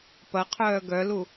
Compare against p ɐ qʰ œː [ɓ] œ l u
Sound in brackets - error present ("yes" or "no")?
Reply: yes